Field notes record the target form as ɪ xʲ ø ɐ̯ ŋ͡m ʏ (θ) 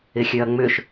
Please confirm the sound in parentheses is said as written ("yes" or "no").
no